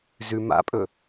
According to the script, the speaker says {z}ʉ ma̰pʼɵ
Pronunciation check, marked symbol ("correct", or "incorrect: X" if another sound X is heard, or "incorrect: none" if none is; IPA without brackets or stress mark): correct